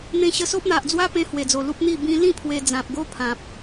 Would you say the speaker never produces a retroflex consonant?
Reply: yes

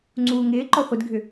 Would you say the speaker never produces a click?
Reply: no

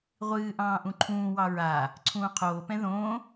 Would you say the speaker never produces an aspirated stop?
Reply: no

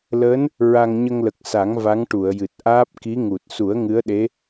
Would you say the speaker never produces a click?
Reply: yes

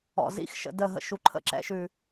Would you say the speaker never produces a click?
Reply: no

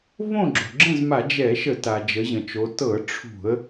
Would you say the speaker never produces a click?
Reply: no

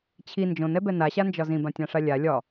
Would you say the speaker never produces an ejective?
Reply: yes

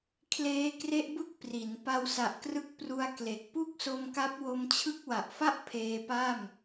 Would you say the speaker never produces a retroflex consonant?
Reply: yes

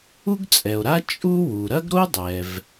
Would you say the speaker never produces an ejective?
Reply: no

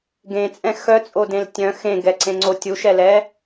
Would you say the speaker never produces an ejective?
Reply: no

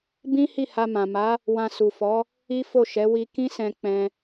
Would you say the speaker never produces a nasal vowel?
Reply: no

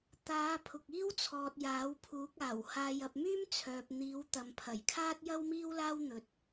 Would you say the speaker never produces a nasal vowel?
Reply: yes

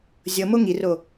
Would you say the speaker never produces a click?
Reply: yes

